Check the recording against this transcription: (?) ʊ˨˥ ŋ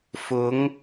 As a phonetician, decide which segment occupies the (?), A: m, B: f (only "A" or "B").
B